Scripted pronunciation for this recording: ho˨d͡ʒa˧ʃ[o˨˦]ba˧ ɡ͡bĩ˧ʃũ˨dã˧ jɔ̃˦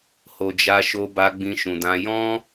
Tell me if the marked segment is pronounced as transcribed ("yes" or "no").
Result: no